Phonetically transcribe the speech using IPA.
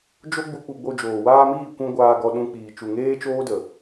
d͡ʒ o˦ ɡ͡b u˧ k͡p u˧ ɡ͡b o˧ d͡ʒ oː˨ w aː˧ m iː˦˨ kʷ ũ˧ ɡʷ aː˧ ɡ ɔ˧ ɗ ũ˧ k͡p iː˨ t͡ʃ u˨ ŋ eː˦ t͡ʃ oː˦ d ə˨

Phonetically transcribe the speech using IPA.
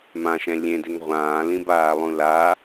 m ã ʃ ɛ̃ lʲ ẽ d e ŋ ʁʷ ãː l ĩ b aː lˠ ũ l a

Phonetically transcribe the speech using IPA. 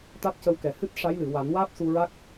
t̪ a˦˥ t̚ c ə˧ w k ɛ˨˩ h ɨ˦˥ t̚ ʂ a˧˥ j l ɨ˨˩˨ w a˨˩˦ n w aː˦˥ p̚ s u˧ ɹ a˦˥ k̚

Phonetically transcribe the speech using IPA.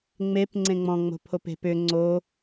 ŋ͡m e p ŋ͡ǀ ẽ ŋ͡m ɔ̃ ŋ͡m o̤ pʰ o p e̤ p ʏ ŋ͡ǀ o

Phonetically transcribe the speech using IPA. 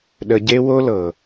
ɗ ə˨ ɟ e˦ w o˦ l ɤ˨

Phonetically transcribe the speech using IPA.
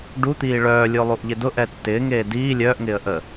ɖ u t̪ iː ɭ œː lʲ o lˠ u ʔ ʎ ɪ d ʊ ʔ ɛ tː ɪː ŋ eː d iː lʲ œː ʔ ŋ ɪː ə̯ ʔ ə

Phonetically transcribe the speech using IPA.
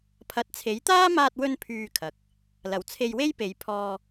pʰ ɐ˨ t̚ t͡sʰ e˨˥ j t̪ aː˥ m aː˧ t̚ w ɵ˧ n pʰ yː˧ kʰ ɐ˨ k̚ | l ɐ˨˩ w t͡sʰ e˧ j w e˥ j p e˨˧ j pʰ ɔː˧

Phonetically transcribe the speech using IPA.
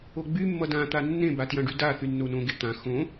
o ɡ͡b y mː ʌ d ã t̪ a nː ẽ b a t j ã ɖ y d a θ y nː o n õ ɡ e t̪ ã x õ

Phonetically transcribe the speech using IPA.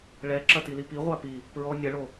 ɭ ɛ ǁ ɐ t i l i p i ʁʷ a p i | p ɹ ɔ nʲ ɐ ɭ o

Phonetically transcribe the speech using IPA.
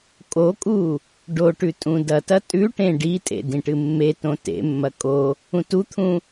kʼ o kʼ u | ɖ o ʈ ʉ tʼ ũ d ɐ t ɐ tʼ ʉ ʈ ẽ ɖ i tʼ ḛ d ĩ ʈ ɨ mː e t õ t ḛ mː ɐ kʼ o | ũ t u t̪ʰ ũ

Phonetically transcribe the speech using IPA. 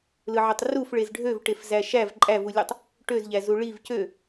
l ɯ ʕ ø tˤ r u f ɭ e z ɖʱ ø v ʈ e f z æ ʃ æ v ǃʼ æ v u lʲ u tˤ | ʈ ø z ʎ æ z u ɭ i v c ø

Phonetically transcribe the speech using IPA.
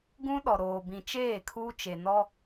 ɡ ũ˦ ɗ ɔ˨ ɾ oː˨ b ĩ˨ t͡ʃ eː˦˨ kʰ u˦ t͡ʃ e˨ n ɔ˦

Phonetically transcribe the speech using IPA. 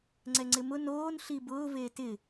ŋ͡ǀ ɛ ŋ͡ǀ ɪ m ʊ n oː n ɬ i b ʊː v eː t ɪ

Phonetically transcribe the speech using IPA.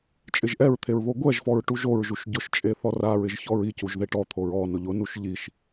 t͡ʃʼ ɪ ʒ ʔ ɛ ɹ t̪ʰ e ɹ β o ɡʷ ɛ ʒ f ɔ ɹ ʈ u ʒ o ɹ ʒ u ʃ ɟ ʊ ʃ t͡ʃʼ e θ ɔ r a ɹ ɪ ʒ ç ɔ ɹ i c u ʒ ð e ʈ ɔ t̪ʰ o ɹ ɔ n ʊ ʎ ʊ n u ʃ ʎ i ʃ

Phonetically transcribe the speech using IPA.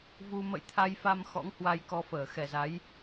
v u˧ m ə̰˧˨ j t̪ʰ a˧ j f a˧ m x ɔ̰˧˥ ŋ h w a˧ j k ɔ˧ f əː˧˩ x ɛ˨˩ z a˨˦ j

